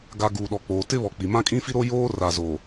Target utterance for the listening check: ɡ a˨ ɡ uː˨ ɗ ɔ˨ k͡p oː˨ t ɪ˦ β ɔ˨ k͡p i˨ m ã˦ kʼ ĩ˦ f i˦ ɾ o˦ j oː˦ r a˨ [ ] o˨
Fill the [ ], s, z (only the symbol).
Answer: z